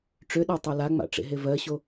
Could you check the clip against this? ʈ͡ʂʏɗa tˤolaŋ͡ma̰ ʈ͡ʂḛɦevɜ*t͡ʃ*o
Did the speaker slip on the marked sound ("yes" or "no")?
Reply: yes